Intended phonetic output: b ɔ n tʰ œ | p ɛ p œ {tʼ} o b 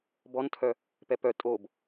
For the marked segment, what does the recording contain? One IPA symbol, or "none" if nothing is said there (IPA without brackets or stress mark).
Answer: tʼ